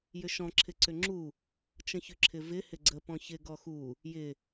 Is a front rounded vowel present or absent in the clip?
present